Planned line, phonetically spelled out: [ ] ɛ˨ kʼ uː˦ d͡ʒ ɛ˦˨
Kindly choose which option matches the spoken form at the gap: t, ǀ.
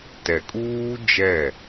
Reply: t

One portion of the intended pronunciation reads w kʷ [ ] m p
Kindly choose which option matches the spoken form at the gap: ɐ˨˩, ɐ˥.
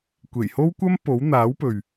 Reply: ɐ˥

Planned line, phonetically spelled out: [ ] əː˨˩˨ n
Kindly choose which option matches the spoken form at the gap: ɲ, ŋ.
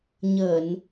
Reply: ɲ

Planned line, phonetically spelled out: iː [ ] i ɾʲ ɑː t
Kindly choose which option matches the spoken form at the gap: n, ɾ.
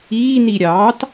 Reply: n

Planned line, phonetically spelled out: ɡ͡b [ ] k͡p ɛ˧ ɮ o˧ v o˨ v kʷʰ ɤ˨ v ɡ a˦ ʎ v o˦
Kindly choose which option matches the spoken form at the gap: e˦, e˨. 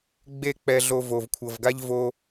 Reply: e˦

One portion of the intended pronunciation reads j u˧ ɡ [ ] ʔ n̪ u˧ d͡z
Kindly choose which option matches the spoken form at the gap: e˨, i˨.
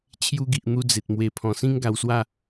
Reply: i˨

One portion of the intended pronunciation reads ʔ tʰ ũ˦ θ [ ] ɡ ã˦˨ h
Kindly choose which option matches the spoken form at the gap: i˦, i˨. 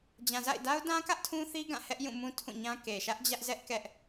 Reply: i˦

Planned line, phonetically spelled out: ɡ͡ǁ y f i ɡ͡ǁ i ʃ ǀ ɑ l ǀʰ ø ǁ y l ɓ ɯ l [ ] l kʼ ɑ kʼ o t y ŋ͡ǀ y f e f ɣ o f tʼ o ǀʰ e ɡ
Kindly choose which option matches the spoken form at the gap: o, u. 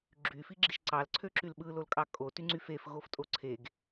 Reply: o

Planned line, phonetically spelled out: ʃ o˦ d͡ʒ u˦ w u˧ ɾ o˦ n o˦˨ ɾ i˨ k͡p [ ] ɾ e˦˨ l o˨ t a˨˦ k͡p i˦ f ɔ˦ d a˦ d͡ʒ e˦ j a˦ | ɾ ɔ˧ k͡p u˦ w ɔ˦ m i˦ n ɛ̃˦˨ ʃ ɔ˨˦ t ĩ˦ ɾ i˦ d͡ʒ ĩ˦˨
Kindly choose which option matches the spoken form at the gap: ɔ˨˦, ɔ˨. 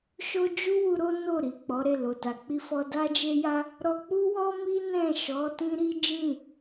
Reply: ɔ˨˦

